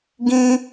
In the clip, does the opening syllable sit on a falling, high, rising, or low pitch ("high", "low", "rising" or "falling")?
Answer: high